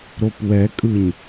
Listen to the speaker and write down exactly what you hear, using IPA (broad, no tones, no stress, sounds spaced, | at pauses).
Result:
ɾ o p w ɛ kʼ ɯ ɲ